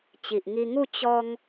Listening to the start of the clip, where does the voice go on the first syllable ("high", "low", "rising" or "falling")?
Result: low